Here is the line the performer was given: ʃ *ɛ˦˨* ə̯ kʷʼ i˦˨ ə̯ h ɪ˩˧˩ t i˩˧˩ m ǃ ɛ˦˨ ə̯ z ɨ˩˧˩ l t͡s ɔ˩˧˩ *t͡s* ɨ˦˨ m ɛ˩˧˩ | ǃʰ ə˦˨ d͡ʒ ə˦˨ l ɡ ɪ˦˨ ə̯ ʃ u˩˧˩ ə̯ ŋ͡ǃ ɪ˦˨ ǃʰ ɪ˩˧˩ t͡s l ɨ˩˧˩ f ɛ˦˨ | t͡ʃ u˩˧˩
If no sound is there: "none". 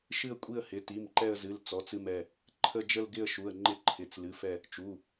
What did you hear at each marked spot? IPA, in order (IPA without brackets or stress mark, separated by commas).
ɨ˦˨, t͡s